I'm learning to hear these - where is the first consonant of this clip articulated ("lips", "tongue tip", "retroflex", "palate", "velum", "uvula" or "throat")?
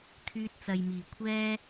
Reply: velum